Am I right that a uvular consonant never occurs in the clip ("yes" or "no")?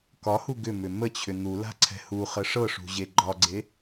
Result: no